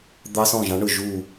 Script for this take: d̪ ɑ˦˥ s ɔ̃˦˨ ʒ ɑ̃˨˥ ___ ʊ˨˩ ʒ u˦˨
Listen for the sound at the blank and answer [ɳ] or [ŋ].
ɳ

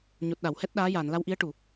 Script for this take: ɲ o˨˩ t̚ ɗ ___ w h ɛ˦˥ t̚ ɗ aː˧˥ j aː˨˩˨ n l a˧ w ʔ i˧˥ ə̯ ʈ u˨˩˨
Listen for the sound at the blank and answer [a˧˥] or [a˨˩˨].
a˨˩˨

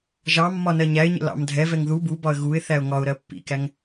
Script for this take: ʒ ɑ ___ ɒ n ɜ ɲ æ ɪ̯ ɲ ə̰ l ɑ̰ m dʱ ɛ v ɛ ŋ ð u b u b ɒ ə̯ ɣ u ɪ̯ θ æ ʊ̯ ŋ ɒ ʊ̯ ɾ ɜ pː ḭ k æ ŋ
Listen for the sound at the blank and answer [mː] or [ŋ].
mː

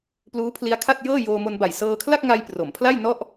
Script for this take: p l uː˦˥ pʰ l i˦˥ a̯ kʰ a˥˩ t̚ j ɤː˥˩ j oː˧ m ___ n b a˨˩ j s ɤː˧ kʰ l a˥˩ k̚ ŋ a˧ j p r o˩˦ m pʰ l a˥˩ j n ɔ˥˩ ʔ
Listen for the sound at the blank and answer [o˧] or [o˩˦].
o˧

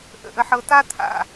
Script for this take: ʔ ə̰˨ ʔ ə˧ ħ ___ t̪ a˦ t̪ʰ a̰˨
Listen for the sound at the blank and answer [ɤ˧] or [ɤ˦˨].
ɤ˧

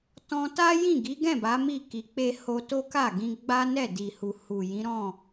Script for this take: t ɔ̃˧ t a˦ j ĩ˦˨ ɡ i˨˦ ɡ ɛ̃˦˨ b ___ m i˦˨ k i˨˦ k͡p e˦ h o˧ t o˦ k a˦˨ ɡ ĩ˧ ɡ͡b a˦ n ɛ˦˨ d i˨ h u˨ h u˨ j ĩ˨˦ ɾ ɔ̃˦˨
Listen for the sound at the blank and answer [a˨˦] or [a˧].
a˨˦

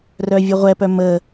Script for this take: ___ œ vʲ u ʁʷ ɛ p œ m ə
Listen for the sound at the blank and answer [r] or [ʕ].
r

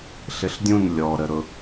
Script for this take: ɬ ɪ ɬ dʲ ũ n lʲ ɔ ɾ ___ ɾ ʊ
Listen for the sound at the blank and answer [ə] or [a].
ə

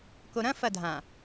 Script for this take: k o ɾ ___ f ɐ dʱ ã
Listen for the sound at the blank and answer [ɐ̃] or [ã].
ɐ̃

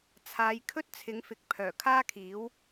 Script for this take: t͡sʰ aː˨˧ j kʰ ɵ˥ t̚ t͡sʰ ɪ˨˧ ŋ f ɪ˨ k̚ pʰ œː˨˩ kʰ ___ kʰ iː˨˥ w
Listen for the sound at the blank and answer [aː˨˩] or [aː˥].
aː˥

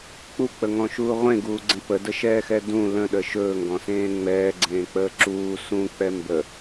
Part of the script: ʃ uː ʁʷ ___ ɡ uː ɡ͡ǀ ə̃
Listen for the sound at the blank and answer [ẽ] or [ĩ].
ẽ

